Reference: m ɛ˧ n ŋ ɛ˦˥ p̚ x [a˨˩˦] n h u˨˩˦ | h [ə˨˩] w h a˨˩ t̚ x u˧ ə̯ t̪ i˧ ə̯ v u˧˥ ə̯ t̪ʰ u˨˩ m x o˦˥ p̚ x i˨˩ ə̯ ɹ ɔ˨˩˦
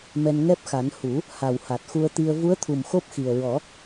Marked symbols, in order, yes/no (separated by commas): yes, no